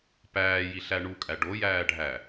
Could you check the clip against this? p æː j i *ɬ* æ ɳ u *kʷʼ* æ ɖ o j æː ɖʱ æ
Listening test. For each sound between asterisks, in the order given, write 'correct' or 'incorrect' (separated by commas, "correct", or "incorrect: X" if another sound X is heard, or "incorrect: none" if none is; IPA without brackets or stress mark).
correct, incorrect: kʼ